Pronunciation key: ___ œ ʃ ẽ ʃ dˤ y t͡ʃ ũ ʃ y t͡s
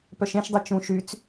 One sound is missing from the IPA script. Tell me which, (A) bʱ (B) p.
B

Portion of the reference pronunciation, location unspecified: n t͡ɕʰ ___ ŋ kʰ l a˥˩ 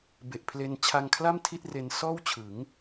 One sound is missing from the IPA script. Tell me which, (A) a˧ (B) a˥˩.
A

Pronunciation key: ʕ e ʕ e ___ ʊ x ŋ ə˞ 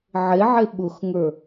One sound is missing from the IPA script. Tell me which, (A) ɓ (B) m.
A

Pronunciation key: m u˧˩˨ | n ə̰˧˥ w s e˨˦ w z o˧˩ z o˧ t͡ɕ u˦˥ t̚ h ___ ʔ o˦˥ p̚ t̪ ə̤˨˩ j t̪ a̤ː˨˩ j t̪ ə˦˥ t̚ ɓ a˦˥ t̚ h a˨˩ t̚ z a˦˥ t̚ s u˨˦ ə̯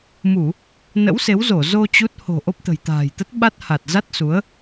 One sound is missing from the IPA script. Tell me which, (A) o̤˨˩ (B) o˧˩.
A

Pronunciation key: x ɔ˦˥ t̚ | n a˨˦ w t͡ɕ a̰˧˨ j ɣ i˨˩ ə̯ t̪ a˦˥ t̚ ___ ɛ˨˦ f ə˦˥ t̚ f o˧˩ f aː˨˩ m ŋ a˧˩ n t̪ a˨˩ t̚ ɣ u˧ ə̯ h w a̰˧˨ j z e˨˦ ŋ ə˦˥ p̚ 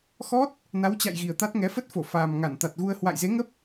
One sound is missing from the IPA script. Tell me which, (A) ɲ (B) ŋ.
B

